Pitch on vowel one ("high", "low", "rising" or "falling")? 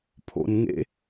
low